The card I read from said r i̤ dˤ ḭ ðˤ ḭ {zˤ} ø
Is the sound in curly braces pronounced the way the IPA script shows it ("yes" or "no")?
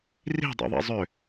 yes